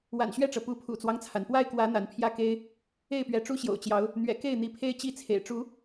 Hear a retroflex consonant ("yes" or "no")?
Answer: yes